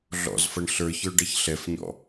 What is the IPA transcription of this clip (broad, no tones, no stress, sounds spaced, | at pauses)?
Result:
ɮ ɔ̰ z f ɐ ɳ ɬ ə˞ ç ə˞ ɖ ɐ ç ɬ ɛ f ɲ ɔ̰